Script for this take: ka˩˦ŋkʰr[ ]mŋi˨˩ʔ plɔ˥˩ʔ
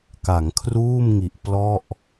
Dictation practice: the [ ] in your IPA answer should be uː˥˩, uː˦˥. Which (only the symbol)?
uː˥˩